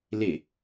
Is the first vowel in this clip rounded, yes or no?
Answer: no